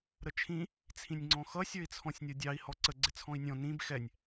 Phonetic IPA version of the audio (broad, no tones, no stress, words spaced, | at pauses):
ɾət͡ʃʰĩ | t͡sʰĩnʲŋ͡ǀɔ̃xʌ sʲə˞i̯t͡sʰɔ̃sʲnʲɔdʲɑi̯ hɔǀə ɡ͡ǀɪt͡sʰɔ̃i̯nʲɔ̃ nĩb xɛnʲ